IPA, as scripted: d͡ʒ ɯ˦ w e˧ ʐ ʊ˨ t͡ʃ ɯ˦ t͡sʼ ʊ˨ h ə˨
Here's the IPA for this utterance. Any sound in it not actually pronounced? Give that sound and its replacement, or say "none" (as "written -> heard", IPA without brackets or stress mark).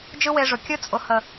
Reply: t͡ʃ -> kʲ